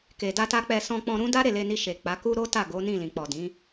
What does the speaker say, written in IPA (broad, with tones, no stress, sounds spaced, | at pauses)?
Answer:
k e˨ d a˧ t a˧ k͡p ɛ˧ s ɔ̃˧ k͡p ɔ̃˧ ɾ ũ˦ d a˦ ɾ e˦˨ l e˧ n i˧ ʃ e˨ k͡p a˨˦ k u˦ ɾ o˦ t a˦˨ ɡ o˨˦ n ĩ˦˨ l ĩ˨ k͡p ɔ˨ d ĩ˨˦